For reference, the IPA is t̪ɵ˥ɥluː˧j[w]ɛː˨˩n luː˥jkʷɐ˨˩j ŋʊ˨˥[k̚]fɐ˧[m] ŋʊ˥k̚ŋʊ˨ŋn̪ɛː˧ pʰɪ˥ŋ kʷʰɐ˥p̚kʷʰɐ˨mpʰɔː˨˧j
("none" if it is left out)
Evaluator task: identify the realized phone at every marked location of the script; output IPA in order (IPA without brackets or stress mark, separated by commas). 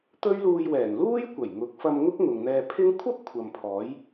w, k̚, m